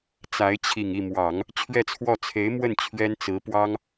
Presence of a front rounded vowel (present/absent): absent